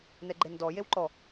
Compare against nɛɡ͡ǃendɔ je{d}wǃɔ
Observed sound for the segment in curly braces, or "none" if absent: none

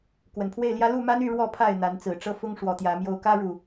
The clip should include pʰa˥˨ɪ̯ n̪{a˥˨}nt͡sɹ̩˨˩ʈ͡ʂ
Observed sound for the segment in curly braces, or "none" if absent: a˨˦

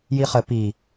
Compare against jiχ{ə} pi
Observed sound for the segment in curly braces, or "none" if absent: ə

